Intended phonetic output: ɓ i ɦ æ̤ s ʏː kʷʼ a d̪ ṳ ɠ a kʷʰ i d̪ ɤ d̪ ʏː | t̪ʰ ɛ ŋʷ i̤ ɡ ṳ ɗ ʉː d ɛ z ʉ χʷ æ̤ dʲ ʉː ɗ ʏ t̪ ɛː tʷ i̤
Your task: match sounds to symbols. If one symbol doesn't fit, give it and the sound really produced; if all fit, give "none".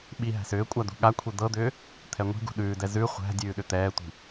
none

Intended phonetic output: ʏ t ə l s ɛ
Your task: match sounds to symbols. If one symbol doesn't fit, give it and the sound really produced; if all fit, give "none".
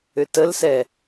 none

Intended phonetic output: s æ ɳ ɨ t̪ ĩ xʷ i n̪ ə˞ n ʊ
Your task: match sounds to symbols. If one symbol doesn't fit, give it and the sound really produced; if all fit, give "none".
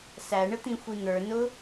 ɨ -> ə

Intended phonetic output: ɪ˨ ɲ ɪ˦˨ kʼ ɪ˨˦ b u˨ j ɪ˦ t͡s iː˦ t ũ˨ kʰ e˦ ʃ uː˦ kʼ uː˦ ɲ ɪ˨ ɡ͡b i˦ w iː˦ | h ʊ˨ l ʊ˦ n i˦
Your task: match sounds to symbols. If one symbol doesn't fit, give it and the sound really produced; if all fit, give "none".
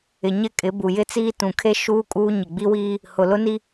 none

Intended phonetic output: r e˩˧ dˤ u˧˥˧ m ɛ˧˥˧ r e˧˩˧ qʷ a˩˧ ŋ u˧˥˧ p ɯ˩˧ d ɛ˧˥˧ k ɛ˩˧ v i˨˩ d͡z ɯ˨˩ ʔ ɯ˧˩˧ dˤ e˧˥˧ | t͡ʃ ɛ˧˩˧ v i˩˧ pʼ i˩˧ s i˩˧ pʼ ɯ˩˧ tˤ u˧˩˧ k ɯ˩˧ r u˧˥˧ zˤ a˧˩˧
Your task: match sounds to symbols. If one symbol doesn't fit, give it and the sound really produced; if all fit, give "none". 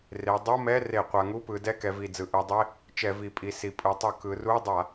zˤ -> dˤ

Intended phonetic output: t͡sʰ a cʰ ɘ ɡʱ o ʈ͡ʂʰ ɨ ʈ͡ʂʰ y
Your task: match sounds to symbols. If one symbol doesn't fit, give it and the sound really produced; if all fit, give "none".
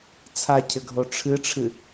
y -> ɨ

